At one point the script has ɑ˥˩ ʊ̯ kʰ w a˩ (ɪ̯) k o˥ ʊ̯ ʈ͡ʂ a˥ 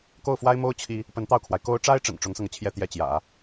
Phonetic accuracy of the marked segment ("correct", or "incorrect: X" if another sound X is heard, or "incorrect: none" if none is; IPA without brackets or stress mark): correct